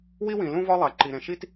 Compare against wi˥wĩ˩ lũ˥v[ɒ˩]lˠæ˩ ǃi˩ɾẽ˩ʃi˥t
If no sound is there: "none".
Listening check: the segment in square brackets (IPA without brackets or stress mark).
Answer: ɒ˥